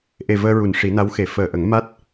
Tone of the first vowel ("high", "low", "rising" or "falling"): low